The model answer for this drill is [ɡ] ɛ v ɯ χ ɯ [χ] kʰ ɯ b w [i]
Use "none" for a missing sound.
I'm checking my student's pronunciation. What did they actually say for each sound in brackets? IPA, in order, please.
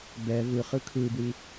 b, none, i

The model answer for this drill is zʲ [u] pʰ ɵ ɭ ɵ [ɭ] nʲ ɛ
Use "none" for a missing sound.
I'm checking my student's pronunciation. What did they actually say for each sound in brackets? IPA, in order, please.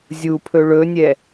u, none

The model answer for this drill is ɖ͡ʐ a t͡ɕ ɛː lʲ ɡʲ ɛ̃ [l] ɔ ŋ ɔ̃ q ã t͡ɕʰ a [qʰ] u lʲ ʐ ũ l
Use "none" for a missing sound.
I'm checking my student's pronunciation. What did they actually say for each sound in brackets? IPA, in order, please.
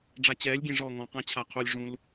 ʐ, qʰ

